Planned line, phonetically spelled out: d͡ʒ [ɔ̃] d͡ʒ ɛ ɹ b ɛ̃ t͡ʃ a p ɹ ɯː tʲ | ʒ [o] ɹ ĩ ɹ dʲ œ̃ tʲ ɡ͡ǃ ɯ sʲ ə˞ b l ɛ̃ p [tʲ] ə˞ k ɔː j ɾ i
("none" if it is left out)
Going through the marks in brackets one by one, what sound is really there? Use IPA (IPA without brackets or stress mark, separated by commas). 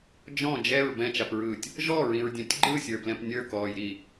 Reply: ɔ̃, ɔ, nʲ